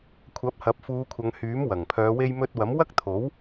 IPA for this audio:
kʷʰ ɐ˨˥ p̚ h ɐ˨ p̚ f uː˨˧ kʷʰ ɐ˨ ŋ h yː˨˥ m w ɐ˨˩ ŋ pʰ œː˨˧ w e˧ j m ɵ˧ t̚ w ɐ˨˥ m w ɐ˥ k̚ t̪ʰ o˨˥ w

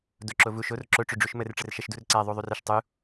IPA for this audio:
d o ǁ o v u ʃ o r ǁ o ʈ͡ʂ u ɖ͡ʐ u ʃ m ə r ʈ͡ʂ ə r ʃ ə ʃ d u r ǀ a ðˤ u ðˤ u r ə ʃ tˤ u

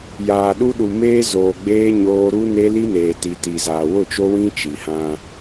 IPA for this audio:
j aː˨ ɗ u˦ ɗ u˨ m eː˦ z oː˨ ɡ͡b eː˦ ɲ oː˦ ɾ u˦ n e˦ l i˦ n eː˨ t i˨ t i˨ z aː˨ w ʊ˦˨ t͡ʃ o˦ w ĩ˦ t͡ʃ i˨ h ã˦

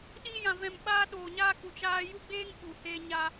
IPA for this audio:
ɗ iː˦ j ã˧ v ɛ̃˧ m ɓ aː˦ ɗ oː˧ ɲ aː˦ k u˧ t͡ʃ aː˦ j u˦ ɡ͡b eː˦ ŋ ɓ u˨ h eː˧ ɲ a˧

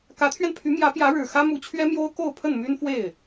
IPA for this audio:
k ä˧˥ t̪ʰ ɥ ɛ˧ n pʰ y˧˥ m j ä˧˥ p j ä˧˥ ɻ ɻ̩˨˩ x ä˥ m u˧˥ t͡ɕʰ ɥ ɛ˥ m j o˥ ʊ̯ k o˥˧ ʊ̯ pʰ ə˥˩ n m y˥ n f w e˥˩ ɪ̯

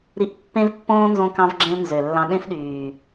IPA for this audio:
ɾ i˧ ʔ pː ẽ˦ v pː õː˦ n z õ˧ k ɑ̃˧ v ɡ͡ǁ ẽ˧ l n z ø˨ lː ɑ̃˧ ɗ ẽ˦ f ɗ yː˨

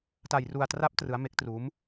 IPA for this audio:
t a˧ j r u˧ a̯ t r a˦˥ p̚ t r ɯ˦˥ a̯ m e˦˥ k̚ t r uː˦˥ m

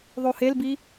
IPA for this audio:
ðˤ o h e l b i

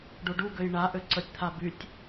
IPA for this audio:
ɖ o ɖ u ɡ ø j ɳ a ʔ ø ǀ ə tʲ t̪ʰ a b y tʲ

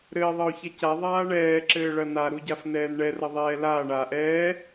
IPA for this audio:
ɾ ɘ e̯ ðˤ ɐ o̯ ç ɛ c a ðˤ aː ɳ ɛː ǁ ɘː ɭ ɐ n a ɾ u ɟ a f n ɛː n ɳ ɛ r ɐ ðˤ ɛː l aː ɳ a ʔ ɛː

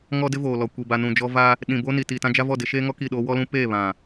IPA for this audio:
ŋ ɔ˦ d ɪ˦ v oː˨ l ɔ˨ kʷ i˨ b a˨ n ũ˨ d͡ʒ ɔ˦ v a˦ | ɗ ĩ˨ b o˦ n i˨ t i˨ t ã˦ d͡ʒ a˦ v ɔ˦˨ d ɪ˦ ʃ eː˦ ŋ ɔ˦ k i˦˨ ɗ oː˦ w ɔ˦ l ũ˦ p eː˦˨ β ã˨

